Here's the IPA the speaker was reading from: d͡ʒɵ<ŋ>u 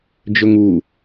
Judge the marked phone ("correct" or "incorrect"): correct